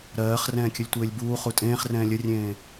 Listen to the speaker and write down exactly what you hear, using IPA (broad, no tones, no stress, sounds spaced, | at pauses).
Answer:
ɾ ɜː χ r ɛ̃ː kʲ ə lʲ tʷ eː lʲ b uː χ u tʼ ẽː χ r ɛ̃ː lʲ ə rʲ ẽː